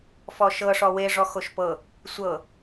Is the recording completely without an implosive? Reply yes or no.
yes